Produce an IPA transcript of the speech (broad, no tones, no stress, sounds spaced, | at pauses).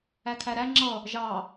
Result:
æ kʰ æ ɾ æ ŋ͡ǁ ʌ | ʒ ɑ